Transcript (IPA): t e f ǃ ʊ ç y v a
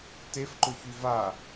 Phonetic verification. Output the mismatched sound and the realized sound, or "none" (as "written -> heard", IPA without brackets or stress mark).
none